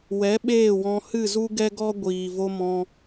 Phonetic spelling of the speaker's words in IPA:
w ɛ˨˦ ɓ eː˦˨ w ɔ̃˧ h ɨ˦˨ z u˦ ɡ ɛ˦ ɡ ɔ˦ ɡʷ iː˨ v o˧ m ɔ̃˧

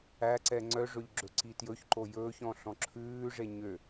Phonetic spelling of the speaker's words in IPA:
æ ǀ ɛ ŋ͡ǀ œ ʐ ɵ ʎ ɡ͡ǁ ɵ ǀ i t j ɵ ç ǃ o j ɵː ç ɔ̃ ɬ ɔ̃ ǁʰ ʉː ʐ e ɲ ø

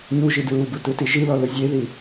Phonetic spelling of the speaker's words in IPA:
ɲ u ʒ i d ɹ u b ɯ t ɯ t i ʒ i l ɔ l ɯ zʲ e ð i

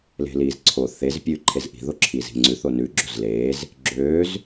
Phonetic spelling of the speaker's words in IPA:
l e̤ l iː z ǀʰ o θ e z pʲ ʉː ǃʰ e z ʔ i̤ ð o ǁʰ iː z i̤ ŋ͡ǀ ʉ θ o n ʉ ɡ͡ǁ o z l eː z | ɡ͡ǁ øː z

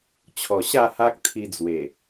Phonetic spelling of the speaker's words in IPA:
t͡ɕʰ ɔ˨˩ ɕ a˥˧ h a˦ k̚ t̪ʰ i˧ d͡z w e˨˩

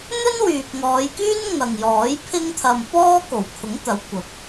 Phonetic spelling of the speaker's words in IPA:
n̪ ɵ˥ n w yː˨ p̚ ŋ ɔː˨˧ j k yː˥ n ŋ ɐ˨ ŋ j ɔː˨˥ j pʰ ɪ˥ ŋ t̪ʰ ɐ˧ m p ɔː˥ k o˨˩ w kʰ ʊ˨˥ ŋ t̪ ɐ˨˧ w kʷ ɐ˨˥ p̚

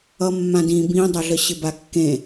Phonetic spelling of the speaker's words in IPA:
ʌ mː ã d ĩ b ĩ dˤ ʌ ɮ ə ɕ ɪ b a kː ẽ

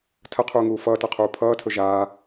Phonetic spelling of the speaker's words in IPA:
tʰ ə qʰ uː ŋ uː f ʌː t ʌ qʰ uː pʰ ʌː tʰ ɵ ʒ aː

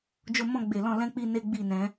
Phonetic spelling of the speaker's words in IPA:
d͡ʒ o˧ m ɔ̃˧ ɡ͡b e˨ l ɔ̃˧ l ɛ̃˦ k͡p i˦ n e˦ ɡ͡b i˦˨ n ɛ̃˨˦

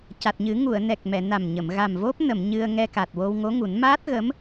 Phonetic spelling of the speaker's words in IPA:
c a˨˩ t̚ ɲ ɨ˨˩˦ ŋ u˨˩˨ ə̯ n ɛ˨˩ k̚ m ɛ˨˩˨ n a˨˩ m ɲ ə˨˩˨ m ɣ a˨˩ m v o˦˥ p̚ n ə˨˩˨ m ɲ ɨ˧ ə̯ ŋ ɛ˧ k a˨˩ t̚ w o˧ w ŋ o˧˥ ŋ u˨˩˦ n m aː˦˥ t̚ ɣ ə˧˥ m

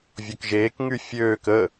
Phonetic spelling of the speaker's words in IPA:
vʲ o k ʒ eː k ŋ y fʲ øː k ə

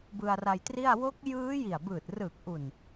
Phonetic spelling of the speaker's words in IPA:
b ɯ˧ a̯ r a˧ j t r i˥˩ a̯ w o˦˥ k̚ j ɯː˦˥ j i˨˩ a̯ b ɯː˨˩ t̚ r ɯː˨˩ k̚ ʔ u˨˩ n

